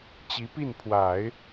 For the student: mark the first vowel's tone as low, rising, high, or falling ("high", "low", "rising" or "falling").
rising